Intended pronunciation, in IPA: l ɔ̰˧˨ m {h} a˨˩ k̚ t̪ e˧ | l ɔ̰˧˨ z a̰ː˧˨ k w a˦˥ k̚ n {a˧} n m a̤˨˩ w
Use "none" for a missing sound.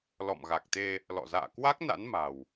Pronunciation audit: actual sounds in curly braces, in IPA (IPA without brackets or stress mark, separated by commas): ɣ, a̰˧˥